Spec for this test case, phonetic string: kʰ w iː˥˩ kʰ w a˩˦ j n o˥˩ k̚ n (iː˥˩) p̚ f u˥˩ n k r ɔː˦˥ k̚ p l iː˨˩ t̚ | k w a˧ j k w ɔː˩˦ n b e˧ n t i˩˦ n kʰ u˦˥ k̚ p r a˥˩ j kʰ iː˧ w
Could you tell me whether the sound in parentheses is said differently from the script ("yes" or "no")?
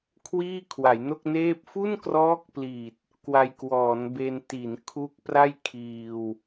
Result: yes